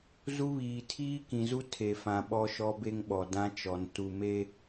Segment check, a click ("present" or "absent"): absent